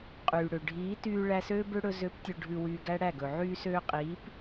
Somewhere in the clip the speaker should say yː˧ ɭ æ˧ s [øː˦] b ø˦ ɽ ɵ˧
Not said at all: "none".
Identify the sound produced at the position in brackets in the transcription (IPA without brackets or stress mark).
øː˦